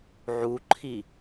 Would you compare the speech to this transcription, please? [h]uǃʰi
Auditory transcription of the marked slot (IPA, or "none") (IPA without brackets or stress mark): ʕ